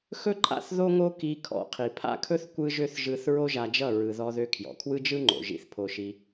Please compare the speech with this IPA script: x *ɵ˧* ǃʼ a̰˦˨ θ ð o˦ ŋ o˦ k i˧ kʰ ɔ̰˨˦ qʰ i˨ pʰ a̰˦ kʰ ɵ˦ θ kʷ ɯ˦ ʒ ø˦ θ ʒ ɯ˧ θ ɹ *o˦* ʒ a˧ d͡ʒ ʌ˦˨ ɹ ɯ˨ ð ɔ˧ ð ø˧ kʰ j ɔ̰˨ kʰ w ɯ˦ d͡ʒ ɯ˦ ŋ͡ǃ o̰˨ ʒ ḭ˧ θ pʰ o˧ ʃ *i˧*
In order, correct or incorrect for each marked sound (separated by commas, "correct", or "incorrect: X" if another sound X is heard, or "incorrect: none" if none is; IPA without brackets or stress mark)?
incorrect: ɵ˦, correct, correct